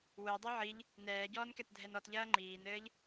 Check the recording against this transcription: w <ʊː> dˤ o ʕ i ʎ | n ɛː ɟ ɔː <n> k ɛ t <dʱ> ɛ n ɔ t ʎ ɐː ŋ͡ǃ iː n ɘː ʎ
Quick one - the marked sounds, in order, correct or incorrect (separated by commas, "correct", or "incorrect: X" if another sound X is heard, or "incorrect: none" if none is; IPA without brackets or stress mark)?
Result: correct, correct, correct